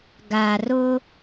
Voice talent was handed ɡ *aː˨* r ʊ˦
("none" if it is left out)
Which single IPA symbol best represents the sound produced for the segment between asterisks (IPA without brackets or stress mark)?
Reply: aː˨